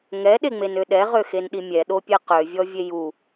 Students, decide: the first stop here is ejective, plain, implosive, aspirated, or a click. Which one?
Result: implosive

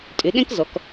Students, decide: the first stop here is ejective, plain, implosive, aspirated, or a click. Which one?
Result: ejective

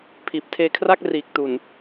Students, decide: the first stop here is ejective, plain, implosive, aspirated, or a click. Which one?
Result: aspirated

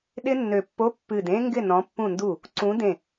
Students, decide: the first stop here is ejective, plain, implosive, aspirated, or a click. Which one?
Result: implosive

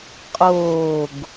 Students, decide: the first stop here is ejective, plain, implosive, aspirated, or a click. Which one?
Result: ejective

